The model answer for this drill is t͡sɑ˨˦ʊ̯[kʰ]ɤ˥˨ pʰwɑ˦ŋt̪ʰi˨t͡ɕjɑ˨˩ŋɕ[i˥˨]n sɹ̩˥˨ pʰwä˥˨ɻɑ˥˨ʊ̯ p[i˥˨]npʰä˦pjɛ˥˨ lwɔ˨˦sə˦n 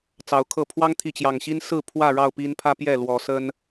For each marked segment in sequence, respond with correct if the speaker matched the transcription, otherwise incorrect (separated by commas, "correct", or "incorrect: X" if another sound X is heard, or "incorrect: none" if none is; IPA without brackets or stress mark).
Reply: correct, incorrect: i˦, incorrect: i˦